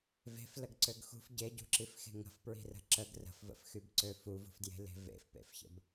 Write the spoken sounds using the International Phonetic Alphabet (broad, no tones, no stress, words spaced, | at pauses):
ve̤fləɡǀøɡ xṳf ɟeɟṳǁifxe̤ ŋə̤fpɹi̤rə̤ ǁəɡ rə̤fvə̰fxybǀø fuvṳfdje̤le̤ vḛfpḛfçə̰b